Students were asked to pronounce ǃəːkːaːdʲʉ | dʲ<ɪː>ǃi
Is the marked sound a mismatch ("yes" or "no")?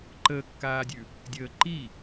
yes